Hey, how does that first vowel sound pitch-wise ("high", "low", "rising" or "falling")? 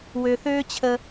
low